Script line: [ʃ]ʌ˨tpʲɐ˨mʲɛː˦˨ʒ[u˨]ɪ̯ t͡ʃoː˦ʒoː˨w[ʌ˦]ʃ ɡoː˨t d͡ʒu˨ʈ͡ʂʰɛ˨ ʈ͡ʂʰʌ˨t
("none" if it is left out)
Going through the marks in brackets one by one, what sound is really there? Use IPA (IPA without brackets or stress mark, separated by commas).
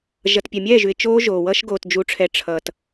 ʒ, ʉ˨, ʌ˦